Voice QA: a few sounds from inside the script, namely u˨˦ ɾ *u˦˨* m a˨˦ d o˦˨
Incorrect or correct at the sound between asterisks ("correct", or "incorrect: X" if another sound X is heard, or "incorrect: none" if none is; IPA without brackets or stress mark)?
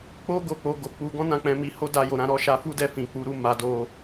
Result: correct